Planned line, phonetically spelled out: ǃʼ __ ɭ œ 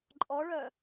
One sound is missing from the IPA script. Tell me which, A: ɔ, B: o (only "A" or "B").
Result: A